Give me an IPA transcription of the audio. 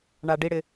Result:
ɳaɖiɽɪ

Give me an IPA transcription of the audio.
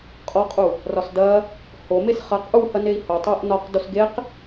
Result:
qʼɔqʼu | rɒsdɐ | homes χɐq ʔu hɐnei̯ho tˤoʔ nɒq dosɡeq

